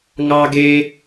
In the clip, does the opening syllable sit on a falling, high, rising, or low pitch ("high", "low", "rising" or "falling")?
high